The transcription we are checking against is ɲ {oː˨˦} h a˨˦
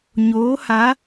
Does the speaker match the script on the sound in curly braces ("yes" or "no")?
yes